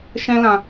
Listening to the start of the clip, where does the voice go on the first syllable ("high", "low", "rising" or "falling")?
high